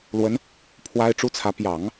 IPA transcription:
l w ə˧˥ n | pʰ w a˥ ɪ̯ ʈ͡ʂ u˥ t͡sʰ ä˧˥ p j ɑ˨˩˦ ŋ

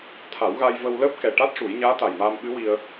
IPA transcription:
t̪ʰ a˨˩˦ w ɣ a˧ j v ə˧ w l əː˦˥ p̚ k ɛ˨˩ ʈ a˦˥ t̚ ʂ u˨˩˦ j ɲ aː˧˥ t̪ a˨˩ j m aː˧ m ɓ ɨ˧˥ w i˧ ə̯

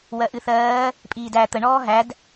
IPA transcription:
w ɜ ʔ ɨ θ ɜː | pʼ iː d æ t̪ ə ɳ ɔː ɦ æ d

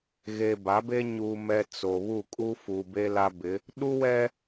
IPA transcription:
ɣ e˨ b a˨˦ b e˦ ɲ uː˨ m ɛ˨ t͡s o˨ β u˦˨ kʼ u˦ f u˨ b e˦ l a˦ b ɪ˨˦ | ɗ u˦ w ɛ˦

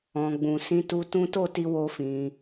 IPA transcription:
ɔ̃˨ ɡ͡b ũ˨ s ĩ˧ t u˧ t ũ˦ t o˦˨ t i˧ w o˧ f ĩ˧

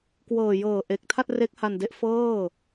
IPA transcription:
k w ɤː˨˩ j ɤː˨˩ ʔ e˨˩ k̚ tʰ a˥˩ t̚ r e˦˥ k̚ h a˧ n d e˦˥ ʔ f ɤː˥˩

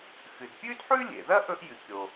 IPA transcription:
x ɨ˩ d pʲ ʉ˥ d ħ ʉ˥ lʲ ḛ˩ ð ɐ˥ ʔ ɵ˥ ʔ j ɨ˩ kʲ o˩

